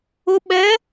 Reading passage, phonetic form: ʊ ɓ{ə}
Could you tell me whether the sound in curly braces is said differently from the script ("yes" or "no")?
yes